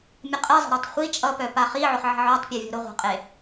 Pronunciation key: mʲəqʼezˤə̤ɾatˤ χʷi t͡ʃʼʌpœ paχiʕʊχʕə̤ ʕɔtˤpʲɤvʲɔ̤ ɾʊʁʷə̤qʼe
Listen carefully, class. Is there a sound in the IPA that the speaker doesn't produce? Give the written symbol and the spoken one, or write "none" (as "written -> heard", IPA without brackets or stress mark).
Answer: none